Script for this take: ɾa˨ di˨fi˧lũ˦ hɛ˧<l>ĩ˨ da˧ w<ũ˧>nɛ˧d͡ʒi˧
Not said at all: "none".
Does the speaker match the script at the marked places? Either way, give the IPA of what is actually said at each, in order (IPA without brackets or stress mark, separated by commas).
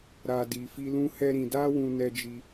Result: ɾ, ũ˧